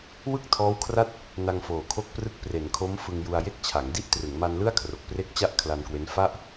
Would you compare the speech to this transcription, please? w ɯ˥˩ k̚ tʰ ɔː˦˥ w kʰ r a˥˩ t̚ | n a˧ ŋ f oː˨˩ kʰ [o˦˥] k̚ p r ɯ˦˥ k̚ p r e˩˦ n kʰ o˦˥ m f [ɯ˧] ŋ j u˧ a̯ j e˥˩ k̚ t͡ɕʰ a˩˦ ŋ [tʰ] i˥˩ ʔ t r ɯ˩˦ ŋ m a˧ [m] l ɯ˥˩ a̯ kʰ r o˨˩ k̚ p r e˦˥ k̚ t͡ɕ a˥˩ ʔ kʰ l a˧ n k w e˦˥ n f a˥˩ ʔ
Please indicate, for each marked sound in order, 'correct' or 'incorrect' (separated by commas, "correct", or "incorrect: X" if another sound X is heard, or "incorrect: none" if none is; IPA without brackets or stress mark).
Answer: correct, correct, incorrect: d, incorrect: n